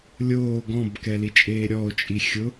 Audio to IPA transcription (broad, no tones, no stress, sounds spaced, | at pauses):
lʲ oː ɡ ɔ̃ b k ɛ l i t͡ʃʼ eː ɾʲ ɔ o̯ t͡ʃʼ i xʲ ʊ